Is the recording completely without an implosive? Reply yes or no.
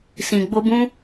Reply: yes